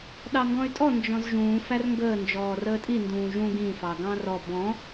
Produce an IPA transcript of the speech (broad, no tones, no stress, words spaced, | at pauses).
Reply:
ɗɑŋɡɔ̃y̯tʼɔ nd͡ʒɔ̃zʒũː færŋɡəː nd͡ʒɔːrəːtʼi ndũːʒũ ɡĩ fɑɡɑ̃rɔ bɔ̃